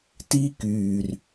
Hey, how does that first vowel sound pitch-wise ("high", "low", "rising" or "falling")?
high